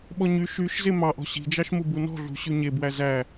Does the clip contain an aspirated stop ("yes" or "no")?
no